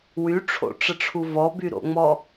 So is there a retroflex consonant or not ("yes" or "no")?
yes